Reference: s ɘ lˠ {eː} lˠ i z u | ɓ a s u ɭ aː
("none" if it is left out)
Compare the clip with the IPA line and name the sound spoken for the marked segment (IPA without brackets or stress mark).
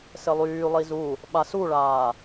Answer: yː